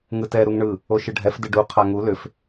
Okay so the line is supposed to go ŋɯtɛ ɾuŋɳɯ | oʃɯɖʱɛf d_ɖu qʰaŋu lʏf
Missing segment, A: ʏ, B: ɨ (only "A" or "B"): B